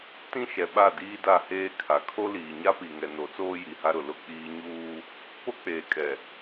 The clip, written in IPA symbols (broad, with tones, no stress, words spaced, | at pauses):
tĩ˦ ʃɛ˨ɓa˦˨ diː˦da˦˨heː˦kʰa˨ kʰo˦liː˨ɲa˦pi˨ ŋɛ˨no˨˦t͡soː˦ ji˨ha˦ɾʊ˨ lʊ˦k͡piː˦ ɲuː˦ | po˦k͡peː˨kʼɛ˨